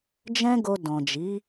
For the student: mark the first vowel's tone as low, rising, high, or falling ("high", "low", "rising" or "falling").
high